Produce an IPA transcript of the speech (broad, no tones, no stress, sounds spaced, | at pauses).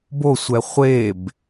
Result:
b o sʷ ɛ χʷ e b